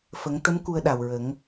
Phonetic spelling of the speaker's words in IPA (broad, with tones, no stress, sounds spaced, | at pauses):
f ə˨˩˦ ŋ t̪ ə˧˥ m k u˧ ə̯ ɗ a˨˩ w ɹ ə˨˩˦ ŋ